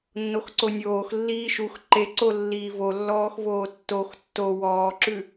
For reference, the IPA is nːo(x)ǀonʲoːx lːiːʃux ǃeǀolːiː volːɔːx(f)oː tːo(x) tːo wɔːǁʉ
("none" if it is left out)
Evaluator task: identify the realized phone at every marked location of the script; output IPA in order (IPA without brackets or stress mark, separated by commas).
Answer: x, v, x